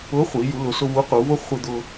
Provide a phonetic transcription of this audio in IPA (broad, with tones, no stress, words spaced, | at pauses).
ʊ˧˥χʷi˩˧ ju˩˧lʊ˩˧sʊ˧ vu˧˥qu˩˧vʊ˥ χʷe˧d̪ʊ˧